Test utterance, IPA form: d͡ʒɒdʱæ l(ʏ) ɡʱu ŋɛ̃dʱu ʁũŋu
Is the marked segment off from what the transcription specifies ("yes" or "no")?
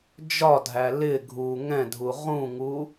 yes